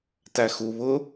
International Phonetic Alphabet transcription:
tæxu βʊ

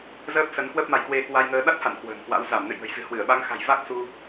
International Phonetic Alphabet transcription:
zəː˦˥p̚sə˨˦n kwə˦˥p̚ma˨˦jkwe˧ kwa˧jŋəː˧ ɗa˦˥t̚ha̰˧˨n kwə̤ː˨˩ŋkwa̰˧˥w za˧˩mnɨ̰˧˨j ŋə̤˨˩j zɨ̤˨˩hwɨ˧˩ə̯ɓa˨˦ŋxa̤˨˩j va˦˥k̚ su˧

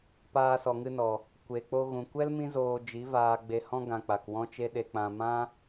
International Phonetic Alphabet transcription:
paː˧sɔ˨ŋɨ˧nɔ˨ | kʷe˨k͡po˧ɣũ˨kʷɛ˦l mĩ˦zoː˧ d͡ʒi˨˦vaː˧ɡ͡be˧hɔ̃˦ ɡã˧k͡pa˨kwɔ̃˦t͡ʃe˦ ɗe˧k͡pã˧ mã˦

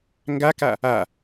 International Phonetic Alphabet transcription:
ŋɡaka | a

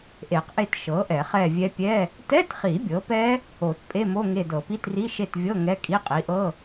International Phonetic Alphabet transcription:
ʔe˨˩˦qʔe˦˨t ʃɤ˩˥ʔɛ˨˩˦χɛ˦˨vʲɛ˦˥ pʲɛ˧˥˧ | tɛ˧˥˧tχi˨˩˦ bʲɤ˩˥pɛ˦˥ | o˨˩˦t pʼe˧˥˧mo˧˥˧ ŋe˦˨ dɤ˨˩˦pi˧˥˧tri˧˥˧ ʃe˦˨tvʲɤ˧˥˧ ŋɛ˧˥˧kʼi˧˥˧ qʼi˩˥ʔɤ˧˥˧

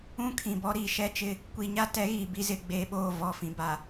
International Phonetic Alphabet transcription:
ũ˦kʰĩ˨bɔ˦ɾiː˨ ʃɛ˦t͡ʃɪ˦ | kʷi˨ɲa˦tɛ˨˦ ɣiː˨bi˦zɪ˦˨ ɡ͡beː˦ɓoː˦˨vɔ˦˨ fĩ˨ba˨

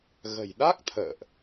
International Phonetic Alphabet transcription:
ɣə̤˨˩jɗa˦˥k̚ t̪ʰə̰ː˧˨ʔ

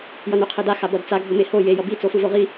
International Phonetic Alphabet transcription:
jʌnuqʰeda xabʌdt͡sa ɡʱomeho je jʌbi t͡sofɯvoʁi

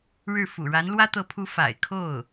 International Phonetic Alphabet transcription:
ɻɻ̩˥˩ fṵ˨˩ɻa˧˥nlwä˥ t̪ɤ˧˥pʰu˧˥ fa̰˨˩ɪ̯kʰo˥˩ʊ̯

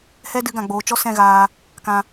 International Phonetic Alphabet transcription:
hɛ˦dɨ˨˦ɡã˨ɡ͡boː˨ t͡ʃɔ˦sɛ̃˦˨ɣaː˧ | kã˧

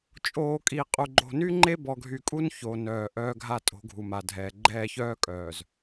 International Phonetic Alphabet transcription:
t͡ʃʼoː˨kʼi˨ qʼu˨ɡ͡ǃo̤˨ny˦ ŋ͡ǃe˦bɔ˨ɡʱy˨kʼu˦n ço˨nœː˨ʔœː˦ɡʱa˦ tʼo̤˨˦ɡʱu˨ma˨dʱɛː˨ ɡ͡ǃɛː˦˨çœː˦kʼœː˨z

